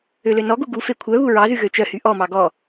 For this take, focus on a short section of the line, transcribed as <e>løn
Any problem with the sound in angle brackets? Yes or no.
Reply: yes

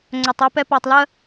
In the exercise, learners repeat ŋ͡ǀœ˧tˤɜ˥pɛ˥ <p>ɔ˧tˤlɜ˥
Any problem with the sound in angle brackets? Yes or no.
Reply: no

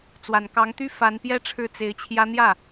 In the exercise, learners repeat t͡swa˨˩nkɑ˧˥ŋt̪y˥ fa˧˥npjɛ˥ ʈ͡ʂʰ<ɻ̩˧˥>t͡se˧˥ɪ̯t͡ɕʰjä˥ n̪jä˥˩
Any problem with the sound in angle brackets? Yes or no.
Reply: yes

